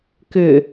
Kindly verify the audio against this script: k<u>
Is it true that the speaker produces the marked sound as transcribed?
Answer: no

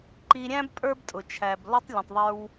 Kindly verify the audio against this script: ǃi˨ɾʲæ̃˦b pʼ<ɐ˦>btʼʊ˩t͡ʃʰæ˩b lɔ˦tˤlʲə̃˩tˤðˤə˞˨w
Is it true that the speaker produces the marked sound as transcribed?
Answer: no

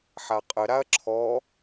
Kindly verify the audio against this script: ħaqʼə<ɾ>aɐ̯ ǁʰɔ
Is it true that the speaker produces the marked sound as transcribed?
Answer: yes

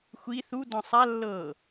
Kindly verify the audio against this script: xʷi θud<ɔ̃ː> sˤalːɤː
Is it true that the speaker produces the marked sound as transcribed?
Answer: no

